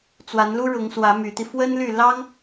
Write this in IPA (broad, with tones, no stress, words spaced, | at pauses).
t͡swa˧˥nlu˥ɻʊ˧˥ŋswä˧˥ my˧˥t̪i˧ fwə˥nly˥˩ lɑ˥ŋ